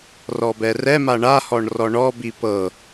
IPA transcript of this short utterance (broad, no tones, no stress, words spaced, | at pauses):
rɔbɛrɛma ɳahɔɳ rɔɳɔbi pɤ